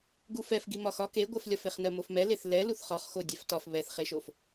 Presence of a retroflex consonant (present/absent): absent